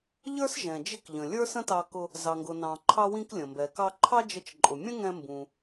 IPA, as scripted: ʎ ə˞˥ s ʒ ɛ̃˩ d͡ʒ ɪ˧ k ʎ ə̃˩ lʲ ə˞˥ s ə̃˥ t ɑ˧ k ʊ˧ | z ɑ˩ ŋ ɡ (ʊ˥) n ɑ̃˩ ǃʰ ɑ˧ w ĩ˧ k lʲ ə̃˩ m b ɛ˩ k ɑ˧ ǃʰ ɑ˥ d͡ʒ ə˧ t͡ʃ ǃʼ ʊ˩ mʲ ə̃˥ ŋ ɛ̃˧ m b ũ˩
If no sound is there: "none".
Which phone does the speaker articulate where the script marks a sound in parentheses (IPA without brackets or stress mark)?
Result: ʊ˩